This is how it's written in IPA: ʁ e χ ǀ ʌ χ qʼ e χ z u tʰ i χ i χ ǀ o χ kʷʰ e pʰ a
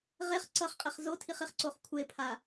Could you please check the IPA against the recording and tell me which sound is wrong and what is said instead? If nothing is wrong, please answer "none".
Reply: u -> o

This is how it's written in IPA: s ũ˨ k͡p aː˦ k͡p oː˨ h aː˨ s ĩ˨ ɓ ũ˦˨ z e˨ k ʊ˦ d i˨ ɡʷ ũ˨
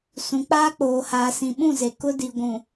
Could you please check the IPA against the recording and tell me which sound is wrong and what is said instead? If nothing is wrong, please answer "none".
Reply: none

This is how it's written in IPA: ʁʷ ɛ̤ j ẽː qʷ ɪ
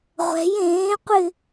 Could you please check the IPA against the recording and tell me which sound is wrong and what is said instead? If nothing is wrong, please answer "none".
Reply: none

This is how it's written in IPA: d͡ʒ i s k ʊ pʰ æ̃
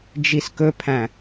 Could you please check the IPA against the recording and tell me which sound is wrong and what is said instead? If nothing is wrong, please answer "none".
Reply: ʊ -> ɵ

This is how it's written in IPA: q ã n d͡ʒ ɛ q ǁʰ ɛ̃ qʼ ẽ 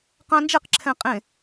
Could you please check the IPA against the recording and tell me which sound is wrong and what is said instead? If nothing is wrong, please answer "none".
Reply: none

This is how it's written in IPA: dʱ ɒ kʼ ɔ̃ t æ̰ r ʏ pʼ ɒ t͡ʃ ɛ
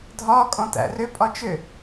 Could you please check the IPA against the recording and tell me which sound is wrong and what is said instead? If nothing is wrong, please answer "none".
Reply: ɛ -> ʏ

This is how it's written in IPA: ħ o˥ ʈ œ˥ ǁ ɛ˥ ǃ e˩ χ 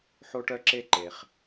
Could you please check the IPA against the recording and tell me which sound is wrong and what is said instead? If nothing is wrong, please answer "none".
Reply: ɛ˥ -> e˥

